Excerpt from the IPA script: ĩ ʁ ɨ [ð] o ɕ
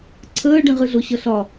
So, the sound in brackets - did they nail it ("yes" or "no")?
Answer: no